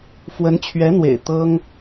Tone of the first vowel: rising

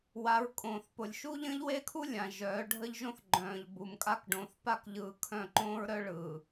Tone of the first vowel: rising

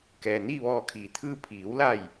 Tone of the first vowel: low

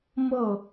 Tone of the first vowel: falling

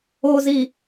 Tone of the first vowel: low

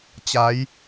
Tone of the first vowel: rising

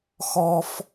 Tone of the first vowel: high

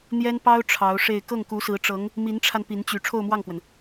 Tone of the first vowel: high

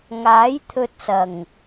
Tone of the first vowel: rising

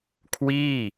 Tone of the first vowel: falling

